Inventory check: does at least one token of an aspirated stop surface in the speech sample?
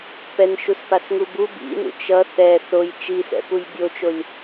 no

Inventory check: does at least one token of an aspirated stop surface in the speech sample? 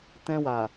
no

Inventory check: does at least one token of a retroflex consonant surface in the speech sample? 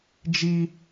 no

